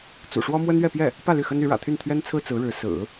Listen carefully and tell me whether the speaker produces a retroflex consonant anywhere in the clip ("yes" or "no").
yes